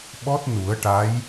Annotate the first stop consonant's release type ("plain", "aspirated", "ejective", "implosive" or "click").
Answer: implosive